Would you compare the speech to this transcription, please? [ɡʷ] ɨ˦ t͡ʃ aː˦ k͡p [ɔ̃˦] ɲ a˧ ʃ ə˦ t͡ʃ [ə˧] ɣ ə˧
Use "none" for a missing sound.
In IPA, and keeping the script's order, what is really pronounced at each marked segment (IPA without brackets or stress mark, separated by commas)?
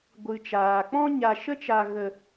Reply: ɡʷ, ɔ̃˦, a˧